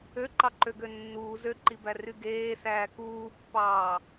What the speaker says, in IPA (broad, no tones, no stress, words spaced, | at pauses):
øǃɑǃøɡø nːuː zøǃibæry ɡeːsæː kuːpːɑː